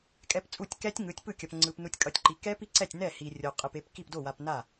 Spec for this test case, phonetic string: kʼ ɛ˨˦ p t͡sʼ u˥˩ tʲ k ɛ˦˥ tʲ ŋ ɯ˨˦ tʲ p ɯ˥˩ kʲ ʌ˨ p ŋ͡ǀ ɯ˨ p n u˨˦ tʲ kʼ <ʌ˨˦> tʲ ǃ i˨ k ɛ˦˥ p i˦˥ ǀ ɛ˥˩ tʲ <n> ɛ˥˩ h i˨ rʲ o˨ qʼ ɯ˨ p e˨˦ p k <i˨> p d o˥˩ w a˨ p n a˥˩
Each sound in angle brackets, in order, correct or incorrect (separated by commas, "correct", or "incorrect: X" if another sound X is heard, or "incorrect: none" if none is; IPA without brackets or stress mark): correct, correct, incorrect: i˥˩